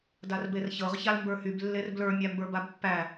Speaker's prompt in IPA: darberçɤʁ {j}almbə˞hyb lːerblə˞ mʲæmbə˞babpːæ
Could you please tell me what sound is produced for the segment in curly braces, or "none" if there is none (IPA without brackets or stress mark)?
ç